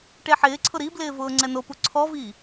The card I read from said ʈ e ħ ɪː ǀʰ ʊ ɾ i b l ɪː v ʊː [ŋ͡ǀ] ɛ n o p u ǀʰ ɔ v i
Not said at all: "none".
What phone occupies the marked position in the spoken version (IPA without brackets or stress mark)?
ŋ͡ǀ